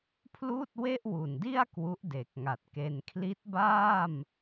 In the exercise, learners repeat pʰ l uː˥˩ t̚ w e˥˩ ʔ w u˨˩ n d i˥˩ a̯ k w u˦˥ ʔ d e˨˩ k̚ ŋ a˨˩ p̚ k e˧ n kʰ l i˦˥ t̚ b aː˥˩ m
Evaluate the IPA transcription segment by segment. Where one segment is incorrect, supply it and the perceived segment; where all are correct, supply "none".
p̚ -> t̚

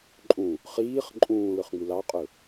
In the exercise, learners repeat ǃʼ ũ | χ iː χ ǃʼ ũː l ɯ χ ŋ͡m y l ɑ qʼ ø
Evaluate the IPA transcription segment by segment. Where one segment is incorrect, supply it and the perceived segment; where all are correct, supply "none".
none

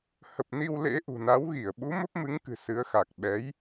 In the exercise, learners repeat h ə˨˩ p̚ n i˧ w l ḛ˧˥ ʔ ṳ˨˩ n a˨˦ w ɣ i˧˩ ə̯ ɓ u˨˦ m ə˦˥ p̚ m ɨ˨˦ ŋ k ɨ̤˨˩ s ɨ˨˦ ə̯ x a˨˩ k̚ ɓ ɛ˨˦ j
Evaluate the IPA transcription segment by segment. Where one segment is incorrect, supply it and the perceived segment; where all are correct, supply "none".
none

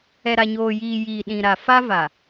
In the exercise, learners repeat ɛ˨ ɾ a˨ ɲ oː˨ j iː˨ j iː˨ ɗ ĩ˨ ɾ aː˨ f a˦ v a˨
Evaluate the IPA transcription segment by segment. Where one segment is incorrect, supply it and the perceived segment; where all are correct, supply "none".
aː˨ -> a˨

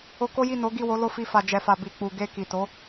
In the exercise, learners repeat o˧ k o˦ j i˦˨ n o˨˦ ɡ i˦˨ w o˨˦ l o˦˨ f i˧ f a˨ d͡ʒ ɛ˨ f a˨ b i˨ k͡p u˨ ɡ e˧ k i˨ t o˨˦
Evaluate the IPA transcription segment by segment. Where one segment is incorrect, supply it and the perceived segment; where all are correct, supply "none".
none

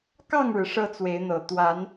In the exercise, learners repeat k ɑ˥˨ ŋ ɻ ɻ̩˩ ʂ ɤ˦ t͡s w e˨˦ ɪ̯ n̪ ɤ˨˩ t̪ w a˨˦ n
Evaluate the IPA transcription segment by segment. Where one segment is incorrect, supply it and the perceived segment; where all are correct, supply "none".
none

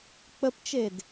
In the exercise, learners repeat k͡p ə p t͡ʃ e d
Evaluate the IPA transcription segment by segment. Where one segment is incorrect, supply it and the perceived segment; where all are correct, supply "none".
none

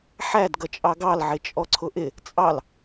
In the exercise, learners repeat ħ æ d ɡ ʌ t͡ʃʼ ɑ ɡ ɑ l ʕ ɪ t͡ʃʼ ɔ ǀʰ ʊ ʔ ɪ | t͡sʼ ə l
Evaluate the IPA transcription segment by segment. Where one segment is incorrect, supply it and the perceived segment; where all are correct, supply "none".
ə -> ɑ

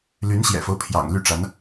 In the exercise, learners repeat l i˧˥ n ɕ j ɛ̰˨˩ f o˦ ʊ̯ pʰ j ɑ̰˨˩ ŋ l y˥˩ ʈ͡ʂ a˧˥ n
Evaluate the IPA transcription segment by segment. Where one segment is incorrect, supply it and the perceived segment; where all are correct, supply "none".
i˧˥ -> y˧˥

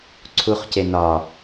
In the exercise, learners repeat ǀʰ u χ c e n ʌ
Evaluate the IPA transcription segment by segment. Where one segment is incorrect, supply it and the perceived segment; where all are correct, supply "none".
ʌ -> ɒ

